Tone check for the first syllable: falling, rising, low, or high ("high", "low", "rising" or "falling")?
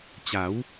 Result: rising